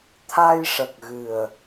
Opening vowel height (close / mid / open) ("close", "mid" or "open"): open